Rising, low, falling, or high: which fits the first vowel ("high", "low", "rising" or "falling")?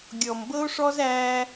low